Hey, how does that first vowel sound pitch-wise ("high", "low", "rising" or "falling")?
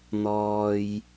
low